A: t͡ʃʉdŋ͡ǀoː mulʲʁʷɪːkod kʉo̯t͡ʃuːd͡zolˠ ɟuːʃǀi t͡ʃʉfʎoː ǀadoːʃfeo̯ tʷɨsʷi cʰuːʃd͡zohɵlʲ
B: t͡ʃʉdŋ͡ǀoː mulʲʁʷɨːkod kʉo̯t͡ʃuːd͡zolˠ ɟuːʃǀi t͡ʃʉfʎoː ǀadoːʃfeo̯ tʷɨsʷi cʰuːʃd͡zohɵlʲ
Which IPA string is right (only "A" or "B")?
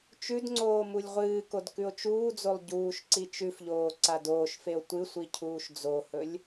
B